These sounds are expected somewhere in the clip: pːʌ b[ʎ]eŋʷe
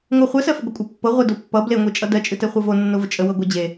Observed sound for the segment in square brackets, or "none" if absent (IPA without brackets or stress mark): l